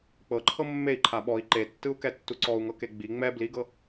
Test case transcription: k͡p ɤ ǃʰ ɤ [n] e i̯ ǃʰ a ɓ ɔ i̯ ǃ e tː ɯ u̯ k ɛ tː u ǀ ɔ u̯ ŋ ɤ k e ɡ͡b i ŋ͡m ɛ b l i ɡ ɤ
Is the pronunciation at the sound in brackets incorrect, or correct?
incorrect: mː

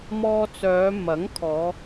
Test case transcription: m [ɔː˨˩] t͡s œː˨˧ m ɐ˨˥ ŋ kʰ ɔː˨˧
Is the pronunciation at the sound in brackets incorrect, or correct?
incorrect: ɔː˧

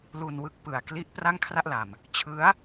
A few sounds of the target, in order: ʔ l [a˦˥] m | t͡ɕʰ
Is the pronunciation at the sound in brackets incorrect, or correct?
incorrect: a˨˩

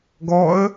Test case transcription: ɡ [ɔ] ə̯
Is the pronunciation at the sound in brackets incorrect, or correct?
correct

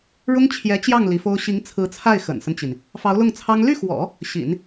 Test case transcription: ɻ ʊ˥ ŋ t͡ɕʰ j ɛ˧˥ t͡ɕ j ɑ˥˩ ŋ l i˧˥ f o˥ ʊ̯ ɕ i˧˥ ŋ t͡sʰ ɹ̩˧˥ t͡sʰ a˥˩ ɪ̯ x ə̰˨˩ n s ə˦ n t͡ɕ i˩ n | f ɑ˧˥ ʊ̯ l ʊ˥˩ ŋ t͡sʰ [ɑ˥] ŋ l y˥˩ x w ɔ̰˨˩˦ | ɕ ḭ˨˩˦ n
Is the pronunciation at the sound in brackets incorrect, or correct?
correct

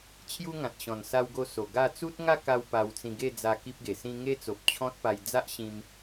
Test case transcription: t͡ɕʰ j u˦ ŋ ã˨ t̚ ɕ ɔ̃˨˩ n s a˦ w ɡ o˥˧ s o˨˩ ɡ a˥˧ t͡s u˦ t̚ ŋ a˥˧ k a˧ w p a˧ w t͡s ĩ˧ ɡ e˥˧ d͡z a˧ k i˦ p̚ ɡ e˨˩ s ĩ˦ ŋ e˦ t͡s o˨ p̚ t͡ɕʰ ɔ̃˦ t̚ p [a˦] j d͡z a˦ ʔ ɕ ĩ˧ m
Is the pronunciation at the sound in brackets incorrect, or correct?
incorrect: a˧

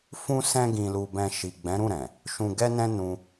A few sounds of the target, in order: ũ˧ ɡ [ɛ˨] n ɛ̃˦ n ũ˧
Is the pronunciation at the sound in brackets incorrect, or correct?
incorrect: ɛ˦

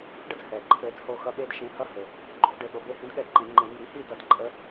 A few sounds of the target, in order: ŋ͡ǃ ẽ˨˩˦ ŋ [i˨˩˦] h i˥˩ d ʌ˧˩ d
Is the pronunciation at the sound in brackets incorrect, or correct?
correct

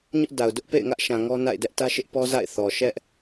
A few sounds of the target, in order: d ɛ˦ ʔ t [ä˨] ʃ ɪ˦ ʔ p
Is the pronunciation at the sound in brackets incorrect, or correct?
incorrect: ä˦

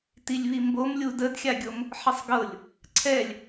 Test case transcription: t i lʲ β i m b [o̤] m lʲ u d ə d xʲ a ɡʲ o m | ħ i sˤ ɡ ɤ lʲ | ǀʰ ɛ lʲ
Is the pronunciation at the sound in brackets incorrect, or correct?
incorrect: o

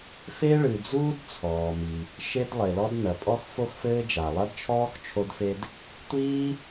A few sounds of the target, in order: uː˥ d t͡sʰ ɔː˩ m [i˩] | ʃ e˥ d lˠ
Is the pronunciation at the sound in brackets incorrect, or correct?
correct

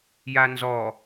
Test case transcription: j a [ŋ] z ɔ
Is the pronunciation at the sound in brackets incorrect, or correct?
incorrect: n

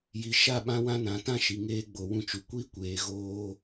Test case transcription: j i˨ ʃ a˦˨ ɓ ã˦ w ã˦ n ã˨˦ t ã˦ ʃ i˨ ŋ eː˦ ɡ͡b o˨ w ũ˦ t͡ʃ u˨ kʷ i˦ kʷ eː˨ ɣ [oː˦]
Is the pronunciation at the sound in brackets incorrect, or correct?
correct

